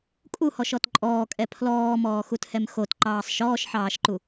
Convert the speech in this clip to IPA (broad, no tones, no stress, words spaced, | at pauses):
kʼuhɔʃɔt ǃʼɔːkʼɛ pʰlɔːmɔːxuthɛm xotǃɑːsˤ ʃɔːʃħɑːʃǃu